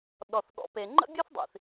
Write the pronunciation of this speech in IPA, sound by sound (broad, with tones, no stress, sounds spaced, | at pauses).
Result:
ɗ ɔ˨ θ ɠ ɔ̰˨ p e˨ ŋ͡ǃ ə̰˦ bʲ ɤ˦ θ dˤ ḭ˨ θ